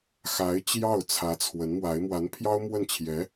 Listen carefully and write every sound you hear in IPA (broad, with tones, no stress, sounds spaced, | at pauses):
x a˧˥ ɪ̯ t͡ɕ j ɑ˥˩ ʊ̯ t͡sʰ ä˧˥ t͡sʰ w ə˧˥ n m w a˧˥ ɪ̯ m w a˧˥ n pʰ j ɑ˥ ʊ̯ m w ə˥˩ n t͡ɕʰ j ɛ˧˥